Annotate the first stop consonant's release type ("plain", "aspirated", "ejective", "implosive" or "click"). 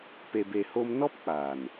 plain